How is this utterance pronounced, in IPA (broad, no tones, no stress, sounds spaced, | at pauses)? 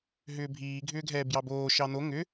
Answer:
ɦ ʏː bʱ iː ɡʱ ʏː ɡʱ ɛː b j ɑ b oː ʃ ɑ n o ŋ ʏ